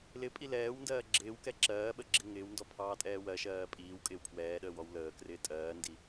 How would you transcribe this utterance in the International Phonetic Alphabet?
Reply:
l ɪ pʼ i l ɛː w n d ɜː ɡ͡ǁ ɪː w k ɛ ǁ ɜː ɓ ə ɡ͡ǁ ɪ ŋ ɪː w n d ɔ pʰ ɑː tʼ ɛː w ɜ ʃ ɜː pʼ iː w kʼ ɪː w pʰ w ɛː ɗ əː w ɔ w l əː k r ɪː tʼ ɜː n d i

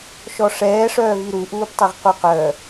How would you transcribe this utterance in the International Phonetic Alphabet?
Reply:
ʃ ɔ ʂ ɛː ʂ œː v i ɾ u ʔ uː p tˤ i ʁ q u q œ

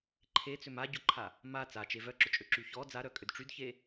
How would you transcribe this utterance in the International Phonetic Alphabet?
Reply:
ǃʰ e t͡s ʏ m a ɟ ʊ ǃʰ a | m a t͡s a t͡ʃ e v œ ǁ ʊ t͡ʃʼ ø ǁ y ç ɔ d͡z a ɾ œ kʼ ʏ d ʈ͡ʂ y d ç e

